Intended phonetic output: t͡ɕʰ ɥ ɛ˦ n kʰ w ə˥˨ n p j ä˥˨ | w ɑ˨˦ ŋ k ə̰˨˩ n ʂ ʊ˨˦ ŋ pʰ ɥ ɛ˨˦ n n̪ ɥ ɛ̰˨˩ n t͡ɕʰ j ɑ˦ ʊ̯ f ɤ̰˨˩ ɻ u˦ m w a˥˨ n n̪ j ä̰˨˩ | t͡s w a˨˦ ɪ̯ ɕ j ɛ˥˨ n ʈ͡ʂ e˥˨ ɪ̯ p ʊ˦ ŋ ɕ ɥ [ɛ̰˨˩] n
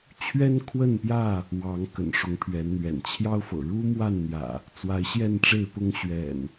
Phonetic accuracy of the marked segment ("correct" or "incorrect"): correct